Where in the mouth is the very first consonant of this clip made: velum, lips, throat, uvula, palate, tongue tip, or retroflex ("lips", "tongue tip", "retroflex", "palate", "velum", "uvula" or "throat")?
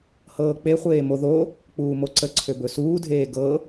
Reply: throat